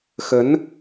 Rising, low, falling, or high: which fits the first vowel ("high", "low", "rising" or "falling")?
rising